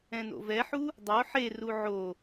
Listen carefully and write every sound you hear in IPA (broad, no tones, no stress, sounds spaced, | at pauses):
ɛ̃ n o̰ v ɛ ħ u | dˤ o ħ e r u ʕ o